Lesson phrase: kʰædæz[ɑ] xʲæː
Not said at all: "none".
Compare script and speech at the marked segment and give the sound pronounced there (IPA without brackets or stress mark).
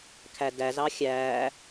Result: ɑ